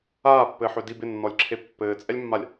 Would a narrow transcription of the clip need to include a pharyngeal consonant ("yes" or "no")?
yes